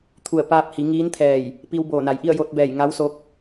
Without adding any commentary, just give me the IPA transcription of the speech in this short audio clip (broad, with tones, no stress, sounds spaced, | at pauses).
t̪ʰ u˧˩ ə̯ p aː˧ p̚ h i˩˧ ŋ iː˧˥ n t̪ʰ ɛː˧˩ j | p i˧ w b oː˧˩ n a˩ j ʔ i˥˨ ə̯ j o˧ t̚ b ɛː˧˩ j ŋ a˧˥ w s o˧˥ k̚